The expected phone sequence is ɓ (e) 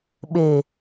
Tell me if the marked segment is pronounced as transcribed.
yes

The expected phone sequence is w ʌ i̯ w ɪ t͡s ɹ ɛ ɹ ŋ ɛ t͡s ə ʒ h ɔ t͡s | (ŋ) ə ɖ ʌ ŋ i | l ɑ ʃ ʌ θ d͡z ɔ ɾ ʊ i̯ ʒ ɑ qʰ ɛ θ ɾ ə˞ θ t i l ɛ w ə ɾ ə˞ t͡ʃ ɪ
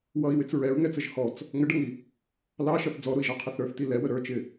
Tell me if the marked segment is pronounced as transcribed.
yes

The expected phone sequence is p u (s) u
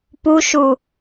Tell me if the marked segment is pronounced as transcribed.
no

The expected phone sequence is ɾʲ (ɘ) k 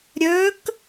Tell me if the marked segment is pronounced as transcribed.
no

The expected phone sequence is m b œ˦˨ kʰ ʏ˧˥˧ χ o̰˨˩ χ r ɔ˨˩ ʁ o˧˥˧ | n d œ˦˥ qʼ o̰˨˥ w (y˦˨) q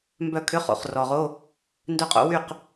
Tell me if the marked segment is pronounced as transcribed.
yes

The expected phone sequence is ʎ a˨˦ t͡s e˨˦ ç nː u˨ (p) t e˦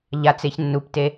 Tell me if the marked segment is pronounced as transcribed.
yes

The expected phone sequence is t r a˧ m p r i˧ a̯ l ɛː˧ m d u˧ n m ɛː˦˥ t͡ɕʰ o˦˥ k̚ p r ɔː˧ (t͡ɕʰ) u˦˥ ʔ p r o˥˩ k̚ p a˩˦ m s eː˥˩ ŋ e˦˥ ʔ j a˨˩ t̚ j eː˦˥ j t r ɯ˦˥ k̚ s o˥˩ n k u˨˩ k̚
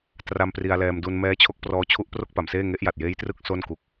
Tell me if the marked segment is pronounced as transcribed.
yes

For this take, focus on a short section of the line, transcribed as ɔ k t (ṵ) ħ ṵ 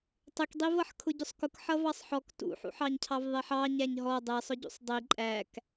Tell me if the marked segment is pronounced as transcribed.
yes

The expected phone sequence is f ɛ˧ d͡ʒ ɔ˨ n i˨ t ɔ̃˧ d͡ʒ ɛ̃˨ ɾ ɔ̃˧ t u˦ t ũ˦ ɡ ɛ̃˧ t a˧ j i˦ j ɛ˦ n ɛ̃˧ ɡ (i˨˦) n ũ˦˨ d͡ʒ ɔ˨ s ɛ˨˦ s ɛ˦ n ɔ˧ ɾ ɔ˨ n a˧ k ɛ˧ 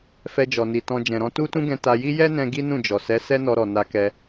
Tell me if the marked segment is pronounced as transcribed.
no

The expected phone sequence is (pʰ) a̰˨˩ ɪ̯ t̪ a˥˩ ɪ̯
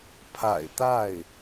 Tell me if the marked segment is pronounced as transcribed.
yes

